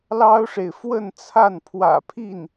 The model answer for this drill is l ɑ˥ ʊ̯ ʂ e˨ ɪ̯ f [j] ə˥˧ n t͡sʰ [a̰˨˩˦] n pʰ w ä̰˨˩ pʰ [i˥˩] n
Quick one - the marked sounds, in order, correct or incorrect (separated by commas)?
incorrect, incorrect, correct